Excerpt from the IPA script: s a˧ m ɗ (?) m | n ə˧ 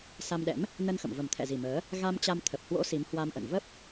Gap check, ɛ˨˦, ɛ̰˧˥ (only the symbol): ɛ̰˧˥